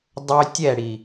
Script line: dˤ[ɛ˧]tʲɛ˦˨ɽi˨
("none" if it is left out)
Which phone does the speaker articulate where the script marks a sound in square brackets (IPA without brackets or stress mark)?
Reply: ø˧